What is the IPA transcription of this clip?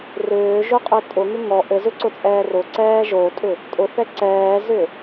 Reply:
rʏːʒʊqʼʏ tʼʊŋʏ ŋɔ ʔɘzʏǀʊt͡sʼɛː rʊǀɛː ʒotʼʏ | tʼʊθɛ ǀɛːzʏ

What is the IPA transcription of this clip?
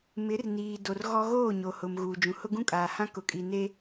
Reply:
mɪ˨˦rniː˨ do˨rɣɔ˦ ɣoː˦˨ɲo˨hʊ˨m ɣuː˨d͡ʒũ˨ hʊ˦ɡũ˦kʼaː˨hã˦ kʊ˨kʼi˨ne˦

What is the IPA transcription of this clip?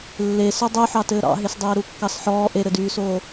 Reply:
lːe sydˤuħɑ tɘːɾɑ̰ɦes dˤeːɾukːɑsħɔː ʔeɾɘdyːsoː

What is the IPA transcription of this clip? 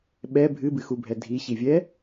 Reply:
ɓɛ bʱɨbɨxubʱɛ dʱiɕivʲɛ

